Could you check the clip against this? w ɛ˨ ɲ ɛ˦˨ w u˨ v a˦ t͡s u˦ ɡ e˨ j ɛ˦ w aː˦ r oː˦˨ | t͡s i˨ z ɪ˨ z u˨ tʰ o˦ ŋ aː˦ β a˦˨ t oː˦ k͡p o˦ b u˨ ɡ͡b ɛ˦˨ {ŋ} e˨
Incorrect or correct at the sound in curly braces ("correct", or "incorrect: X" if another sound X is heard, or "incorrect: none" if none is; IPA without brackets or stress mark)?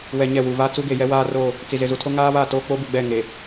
correct